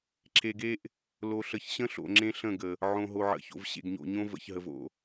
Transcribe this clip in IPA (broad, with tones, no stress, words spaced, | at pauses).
ǁʰe˨ɡe˦ʔ | lo˨ɬə˨çɕə̃˦ɬo̰˨ ŋ͡ǁẽ˦ɬə̃˦˨ɡə˨ | ʕõ˨ɦo˨ʕə̰˨ço̰˨v ɕḛ˨ɡɲo̰˨ɲõ˦ və̰˨ç ɦə˨vo̰˨